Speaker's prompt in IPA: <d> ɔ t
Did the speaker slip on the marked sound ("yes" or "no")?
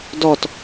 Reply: no